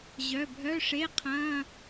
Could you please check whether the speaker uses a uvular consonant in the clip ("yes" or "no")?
yes